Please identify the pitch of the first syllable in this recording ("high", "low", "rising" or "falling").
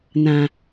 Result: low